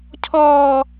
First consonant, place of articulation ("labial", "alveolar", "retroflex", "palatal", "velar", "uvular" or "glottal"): palatal